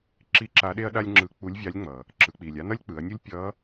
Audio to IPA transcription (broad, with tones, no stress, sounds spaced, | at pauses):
ǁ i˧˥ ǁ a˧˥ ɗ e˥ ɐ̯ ɗ a˥ lʲ ŋ͡ǁ ɯ˧˥ k͡p u˧˥ lʲ vʲ a˧˥ lʲ ŋ͡m ʌ˩ | ǁ ɯ˩˧ k͡p i˩ lʲ a˥ n ʌ˥ lʲ k͡p ɯ˩˧ ɐ̯ nʲ u˥ lʲ pʲ ʌ˧˥